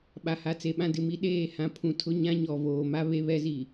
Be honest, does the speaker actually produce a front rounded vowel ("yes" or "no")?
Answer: no